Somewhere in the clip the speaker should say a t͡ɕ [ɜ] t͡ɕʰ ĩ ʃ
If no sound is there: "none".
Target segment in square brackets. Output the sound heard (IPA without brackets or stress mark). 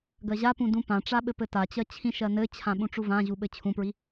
ɜ